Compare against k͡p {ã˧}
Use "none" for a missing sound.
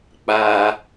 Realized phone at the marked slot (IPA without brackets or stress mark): a˧